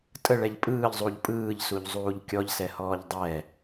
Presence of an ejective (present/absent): present